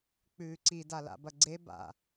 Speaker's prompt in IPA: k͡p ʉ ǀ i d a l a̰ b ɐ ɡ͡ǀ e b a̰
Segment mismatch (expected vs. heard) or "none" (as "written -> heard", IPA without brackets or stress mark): none